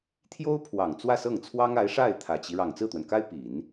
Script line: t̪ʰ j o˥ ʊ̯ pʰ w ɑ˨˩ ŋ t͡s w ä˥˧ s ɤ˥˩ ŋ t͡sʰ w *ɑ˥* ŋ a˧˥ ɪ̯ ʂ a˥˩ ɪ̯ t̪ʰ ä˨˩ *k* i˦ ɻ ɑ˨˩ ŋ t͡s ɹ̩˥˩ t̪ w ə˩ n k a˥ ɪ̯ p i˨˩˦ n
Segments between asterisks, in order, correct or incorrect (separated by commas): correct, incorrect